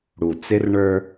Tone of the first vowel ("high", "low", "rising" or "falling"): low